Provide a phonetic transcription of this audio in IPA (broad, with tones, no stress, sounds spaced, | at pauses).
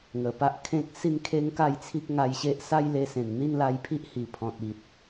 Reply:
ŋ ə˨˩ p a˦ ʔ kʰ ẽ˦ k̚ s i˥˧ n kʰ e˦ ŋ k a˥˧ j t͡sʰ i˦ k̚ ŋ a˧ j ɕ e˦ ʔ s a˦ j l e˧ s ẽ˨˩ n n̪ i˥˧ n l a˧ j pʰ i˦ ʔ h i˨˩ pʰ ɔ̃˨ t̚ i˨ t̚